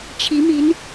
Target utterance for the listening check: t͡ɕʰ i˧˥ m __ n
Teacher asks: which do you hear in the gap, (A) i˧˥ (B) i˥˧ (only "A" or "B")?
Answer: A